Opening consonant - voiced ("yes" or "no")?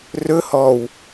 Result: yes